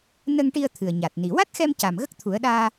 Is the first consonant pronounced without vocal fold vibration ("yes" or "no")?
no